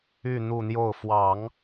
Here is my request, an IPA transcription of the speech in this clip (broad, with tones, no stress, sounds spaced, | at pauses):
y˥˧ n̪ u˥˧ n̪ j o˥˩ ʊ̯ f w ɑ˨˩˦ ŋ